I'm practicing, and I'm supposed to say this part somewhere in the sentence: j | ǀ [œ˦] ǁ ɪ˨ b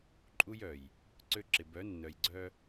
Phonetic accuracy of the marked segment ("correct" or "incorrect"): incorrect